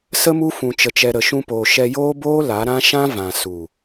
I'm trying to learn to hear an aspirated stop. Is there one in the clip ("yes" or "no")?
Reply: no